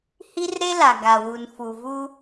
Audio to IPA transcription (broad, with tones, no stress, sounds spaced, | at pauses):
h i˦ r ɾ e˦ l a˨ ɡ a˨ w u˨ n f u˨ v u˦